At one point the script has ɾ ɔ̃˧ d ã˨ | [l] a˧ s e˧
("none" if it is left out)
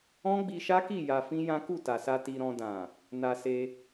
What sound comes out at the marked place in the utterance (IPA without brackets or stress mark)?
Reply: n